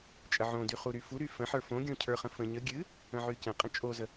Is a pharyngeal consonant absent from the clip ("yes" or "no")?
no